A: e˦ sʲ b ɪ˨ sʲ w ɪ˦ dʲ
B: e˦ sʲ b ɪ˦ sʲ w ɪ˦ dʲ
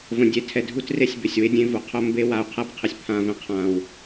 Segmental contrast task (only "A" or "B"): A